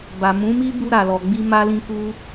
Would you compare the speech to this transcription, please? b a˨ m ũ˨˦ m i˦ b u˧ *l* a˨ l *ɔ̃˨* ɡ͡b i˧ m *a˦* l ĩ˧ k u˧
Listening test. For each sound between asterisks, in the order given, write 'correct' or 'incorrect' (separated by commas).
incorrect, incorrect, incorrect